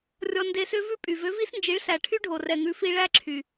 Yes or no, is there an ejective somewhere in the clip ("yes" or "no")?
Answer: yes